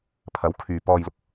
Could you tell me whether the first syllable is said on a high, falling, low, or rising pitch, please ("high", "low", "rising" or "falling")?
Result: rising